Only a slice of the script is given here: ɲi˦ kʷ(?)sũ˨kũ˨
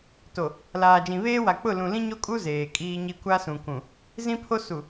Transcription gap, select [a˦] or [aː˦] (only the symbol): a˦